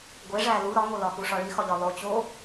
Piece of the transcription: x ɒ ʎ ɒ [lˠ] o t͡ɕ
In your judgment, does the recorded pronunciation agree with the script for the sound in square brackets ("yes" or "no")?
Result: yes